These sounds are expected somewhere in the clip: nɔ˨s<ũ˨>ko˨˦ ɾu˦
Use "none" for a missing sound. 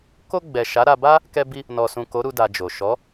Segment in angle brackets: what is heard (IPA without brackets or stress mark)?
ũ˨